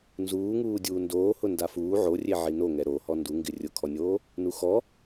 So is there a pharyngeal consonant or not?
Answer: yes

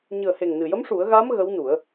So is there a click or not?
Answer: no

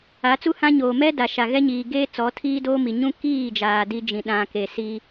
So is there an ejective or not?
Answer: no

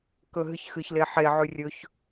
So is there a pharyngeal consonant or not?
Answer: yes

